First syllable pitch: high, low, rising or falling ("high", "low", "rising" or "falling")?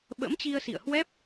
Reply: rising